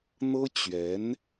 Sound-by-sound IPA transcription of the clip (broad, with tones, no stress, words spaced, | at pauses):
n̪ɤ˥ t͡ɕɥɛ˧˥n